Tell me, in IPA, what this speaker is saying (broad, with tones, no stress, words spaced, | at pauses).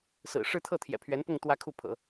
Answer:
sɹ̩˨˩ʂɻ̩˥˧ t̪ʰɤ˥˩t̪ʰjɛ̰˨˩pʰɥɛ˧˥npʊ˥˧ŋ t̪wä˥˧kʰu˥˩pʰɤ̰˨˩˦